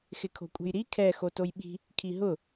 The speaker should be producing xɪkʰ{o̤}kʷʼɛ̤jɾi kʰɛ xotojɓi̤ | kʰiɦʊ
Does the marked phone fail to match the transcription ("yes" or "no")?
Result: no